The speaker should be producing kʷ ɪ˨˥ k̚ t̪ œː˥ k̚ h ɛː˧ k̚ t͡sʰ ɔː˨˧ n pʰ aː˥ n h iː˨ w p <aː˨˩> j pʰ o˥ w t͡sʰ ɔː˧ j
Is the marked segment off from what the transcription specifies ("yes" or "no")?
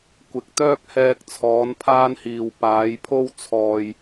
yes